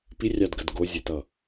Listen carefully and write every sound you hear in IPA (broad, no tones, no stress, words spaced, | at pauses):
pirʲɑdɡəd ɡozʲɛtʌ